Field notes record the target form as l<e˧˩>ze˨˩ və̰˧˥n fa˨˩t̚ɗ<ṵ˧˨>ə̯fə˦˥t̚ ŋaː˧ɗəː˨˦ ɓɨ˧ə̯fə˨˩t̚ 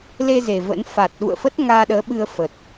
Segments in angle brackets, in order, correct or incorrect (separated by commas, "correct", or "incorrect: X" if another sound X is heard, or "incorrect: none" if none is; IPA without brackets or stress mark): incorrect: e˧, correct